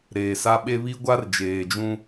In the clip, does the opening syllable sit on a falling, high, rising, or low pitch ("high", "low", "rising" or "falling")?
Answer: low